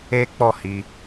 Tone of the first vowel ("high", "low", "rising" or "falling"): high